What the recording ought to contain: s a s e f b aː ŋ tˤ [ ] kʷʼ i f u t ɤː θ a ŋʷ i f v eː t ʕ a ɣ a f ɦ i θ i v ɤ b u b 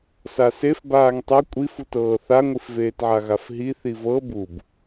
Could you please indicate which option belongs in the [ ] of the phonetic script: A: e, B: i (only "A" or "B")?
B